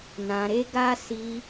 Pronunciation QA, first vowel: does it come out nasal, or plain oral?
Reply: nasal